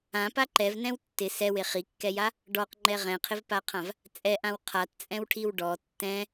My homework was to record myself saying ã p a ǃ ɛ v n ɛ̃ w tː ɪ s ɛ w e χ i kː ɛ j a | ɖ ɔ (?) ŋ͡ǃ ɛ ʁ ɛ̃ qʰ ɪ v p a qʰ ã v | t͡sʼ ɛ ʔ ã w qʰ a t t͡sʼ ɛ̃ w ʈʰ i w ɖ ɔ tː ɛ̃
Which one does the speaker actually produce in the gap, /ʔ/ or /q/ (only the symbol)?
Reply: q